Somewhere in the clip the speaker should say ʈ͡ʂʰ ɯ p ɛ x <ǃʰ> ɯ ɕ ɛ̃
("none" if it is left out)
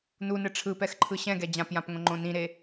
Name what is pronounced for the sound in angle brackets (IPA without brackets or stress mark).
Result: ǃʰ